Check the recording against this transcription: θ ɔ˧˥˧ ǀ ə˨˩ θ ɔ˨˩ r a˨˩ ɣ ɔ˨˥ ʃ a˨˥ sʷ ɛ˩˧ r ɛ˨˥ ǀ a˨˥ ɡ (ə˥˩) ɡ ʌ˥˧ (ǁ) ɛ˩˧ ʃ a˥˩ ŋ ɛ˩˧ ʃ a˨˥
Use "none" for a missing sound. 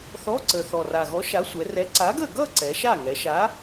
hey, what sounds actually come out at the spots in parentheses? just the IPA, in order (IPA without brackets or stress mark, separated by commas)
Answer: ə˥˩, ǀ